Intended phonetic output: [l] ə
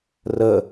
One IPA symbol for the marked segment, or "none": r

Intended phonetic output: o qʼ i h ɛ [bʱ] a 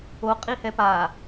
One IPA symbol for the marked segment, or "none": p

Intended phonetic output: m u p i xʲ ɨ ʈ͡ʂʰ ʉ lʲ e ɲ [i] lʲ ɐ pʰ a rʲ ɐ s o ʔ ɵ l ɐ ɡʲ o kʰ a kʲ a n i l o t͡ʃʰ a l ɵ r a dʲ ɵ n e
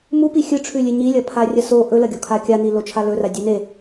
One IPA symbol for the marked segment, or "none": i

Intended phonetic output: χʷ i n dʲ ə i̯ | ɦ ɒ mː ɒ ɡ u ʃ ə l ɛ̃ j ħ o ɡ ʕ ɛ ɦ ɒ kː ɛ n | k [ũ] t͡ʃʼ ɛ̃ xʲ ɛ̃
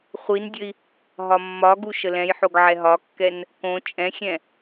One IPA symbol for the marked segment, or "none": õ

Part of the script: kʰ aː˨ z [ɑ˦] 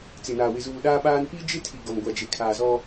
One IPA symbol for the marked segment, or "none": ɔ˦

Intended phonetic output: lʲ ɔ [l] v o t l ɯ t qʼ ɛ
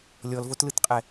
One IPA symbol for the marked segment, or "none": l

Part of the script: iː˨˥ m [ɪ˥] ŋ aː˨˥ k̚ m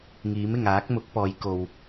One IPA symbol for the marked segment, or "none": ɪ˨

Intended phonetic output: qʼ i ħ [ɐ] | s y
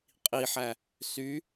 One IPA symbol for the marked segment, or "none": æ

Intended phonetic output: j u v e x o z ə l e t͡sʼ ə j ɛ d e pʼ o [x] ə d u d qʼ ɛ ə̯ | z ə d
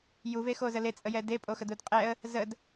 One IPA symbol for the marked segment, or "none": x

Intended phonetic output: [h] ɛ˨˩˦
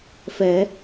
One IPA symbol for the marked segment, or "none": f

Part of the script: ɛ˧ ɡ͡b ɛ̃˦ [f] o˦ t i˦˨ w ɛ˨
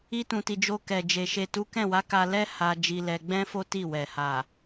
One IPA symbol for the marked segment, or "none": f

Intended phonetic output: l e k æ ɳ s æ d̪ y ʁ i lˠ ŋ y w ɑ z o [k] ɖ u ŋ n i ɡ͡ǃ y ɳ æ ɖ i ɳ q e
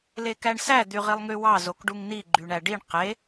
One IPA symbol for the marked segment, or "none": k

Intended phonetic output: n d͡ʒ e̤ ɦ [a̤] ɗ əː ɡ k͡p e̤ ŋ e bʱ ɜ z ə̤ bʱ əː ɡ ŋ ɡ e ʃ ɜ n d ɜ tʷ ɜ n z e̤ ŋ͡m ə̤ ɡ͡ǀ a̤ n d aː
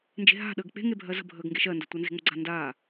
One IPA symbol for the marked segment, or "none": a̤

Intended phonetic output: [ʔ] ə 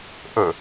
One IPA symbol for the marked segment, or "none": ʔ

